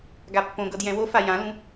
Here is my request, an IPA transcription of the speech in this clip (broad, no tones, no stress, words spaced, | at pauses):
ɡapːõɡɤd jɛ̃wofa jãlũ